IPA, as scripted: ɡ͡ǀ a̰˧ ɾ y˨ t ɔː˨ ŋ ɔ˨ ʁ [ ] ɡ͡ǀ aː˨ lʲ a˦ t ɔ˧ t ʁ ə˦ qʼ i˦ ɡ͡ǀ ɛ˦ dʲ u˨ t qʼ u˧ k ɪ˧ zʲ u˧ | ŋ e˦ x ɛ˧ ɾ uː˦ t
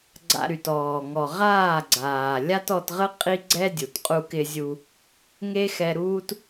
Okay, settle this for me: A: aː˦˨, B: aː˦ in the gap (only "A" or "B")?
A